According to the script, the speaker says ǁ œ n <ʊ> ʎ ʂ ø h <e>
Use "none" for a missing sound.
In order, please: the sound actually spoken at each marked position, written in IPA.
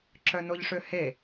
ʊ, e

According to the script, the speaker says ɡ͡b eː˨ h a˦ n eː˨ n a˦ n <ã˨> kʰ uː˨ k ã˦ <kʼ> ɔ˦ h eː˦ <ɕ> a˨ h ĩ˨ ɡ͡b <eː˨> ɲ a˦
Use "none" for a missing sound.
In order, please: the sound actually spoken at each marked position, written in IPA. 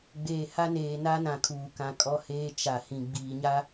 ã˨, kʼ, t͡ʃ, iː˨

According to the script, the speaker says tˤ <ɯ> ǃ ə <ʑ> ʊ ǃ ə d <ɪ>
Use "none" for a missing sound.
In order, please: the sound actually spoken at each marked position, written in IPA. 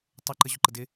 ʊ, ʑ, ɪ

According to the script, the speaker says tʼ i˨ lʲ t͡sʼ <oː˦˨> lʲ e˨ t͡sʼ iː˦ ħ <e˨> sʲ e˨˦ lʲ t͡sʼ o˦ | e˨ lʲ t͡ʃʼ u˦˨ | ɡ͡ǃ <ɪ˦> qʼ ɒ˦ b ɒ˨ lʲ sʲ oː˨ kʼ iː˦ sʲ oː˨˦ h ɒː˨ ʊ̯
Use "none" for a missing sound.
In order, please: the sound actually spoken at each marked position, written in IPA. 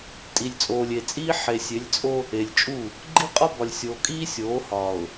oː˨, e˨, i˦

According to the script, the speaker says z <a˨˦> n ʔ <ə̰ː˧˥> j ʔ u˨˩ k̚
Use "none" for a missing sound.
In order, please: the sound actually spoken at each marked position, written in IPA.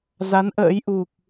a˨˦, ə̰ː˧˥

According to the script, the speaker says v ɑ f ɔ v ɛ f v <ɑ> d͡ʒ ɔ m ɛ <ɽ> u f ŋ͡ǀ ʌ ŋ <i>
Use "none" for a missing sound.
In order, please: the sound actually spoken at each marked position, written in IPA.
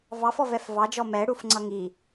ɑ, ɽ, i

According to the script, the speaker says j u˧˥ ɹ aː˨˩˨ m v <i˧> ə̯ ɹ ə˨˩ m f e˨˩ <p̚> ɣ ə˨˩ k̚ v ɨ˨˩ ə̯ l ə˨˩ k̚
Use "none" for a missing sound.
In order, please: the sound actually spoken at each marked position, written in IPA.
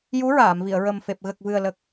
i˨˩˨, p̚

